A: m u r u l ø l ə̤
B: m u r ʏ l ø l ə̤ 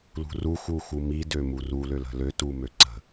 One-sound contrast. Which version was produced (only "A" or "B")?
A